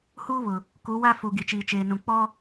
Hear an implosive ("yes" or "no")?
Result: no